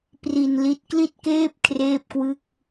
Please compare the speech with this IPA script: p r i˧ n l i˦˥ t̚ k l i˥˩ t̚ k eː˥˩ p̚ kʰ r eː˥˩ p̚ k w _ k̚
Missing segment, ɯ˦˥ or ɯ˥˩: ɯ˥˩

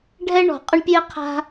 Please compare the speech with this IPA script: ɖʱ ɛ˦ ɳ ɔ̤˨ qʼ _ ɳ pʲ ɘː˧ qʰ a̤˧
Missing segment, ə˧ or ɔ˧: ə˧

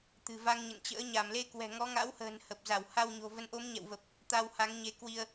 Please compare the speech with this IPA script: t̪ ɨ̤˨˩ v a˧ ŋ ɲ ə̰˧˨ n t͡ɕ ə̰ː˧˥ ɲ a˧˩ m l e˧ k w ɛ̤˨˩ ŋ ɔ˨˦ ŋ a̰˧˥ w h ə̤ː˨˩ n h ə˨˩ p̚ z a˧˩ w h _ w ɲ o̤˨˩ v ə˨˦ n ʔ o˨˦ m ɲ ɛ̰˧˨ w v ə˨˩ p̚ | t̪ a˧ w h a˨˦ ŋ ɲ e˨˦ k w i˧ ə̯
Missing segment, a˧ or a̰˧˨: a˧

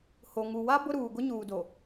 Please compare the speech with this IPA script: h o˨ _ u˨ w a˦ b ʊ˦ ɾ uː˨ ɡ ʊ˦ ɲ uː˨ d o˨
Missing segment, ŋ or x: ŋ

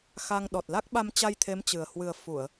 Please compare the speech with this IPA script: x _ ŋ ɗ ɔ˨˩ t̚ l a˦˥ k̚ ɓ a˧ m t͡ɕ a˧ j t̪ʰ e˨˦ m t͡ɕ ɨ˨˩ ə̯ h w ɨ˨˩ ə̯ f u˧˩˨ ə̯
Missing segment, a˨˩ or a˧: a˧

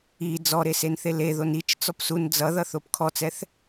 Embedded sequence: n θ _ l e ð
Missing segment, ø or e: e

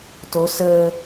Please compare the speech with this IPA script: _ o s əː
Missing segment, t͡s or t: t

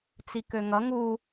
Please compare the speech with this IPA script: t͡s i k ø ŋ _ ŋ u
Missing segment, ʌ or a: ʌ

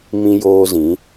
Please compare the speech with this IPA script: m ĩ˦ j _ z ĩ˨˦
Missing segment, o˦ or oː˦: oː˦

